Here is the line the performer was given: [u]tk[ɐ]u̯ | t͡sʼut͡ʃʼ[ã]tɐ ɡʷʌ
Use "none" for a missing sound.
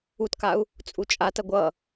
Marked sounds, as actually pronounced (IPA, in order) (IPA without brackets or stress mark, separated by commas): u, a, a